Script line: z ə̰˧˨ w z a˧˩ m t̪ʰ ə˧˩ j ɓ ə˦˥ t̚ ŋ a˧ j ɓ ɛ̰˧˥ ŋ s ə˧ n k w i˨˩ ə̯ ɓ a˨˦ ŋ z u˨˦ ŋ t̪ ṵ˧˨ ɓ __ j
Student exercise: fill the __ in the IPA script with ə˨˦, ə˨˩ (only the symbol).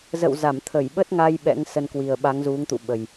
ə˨˩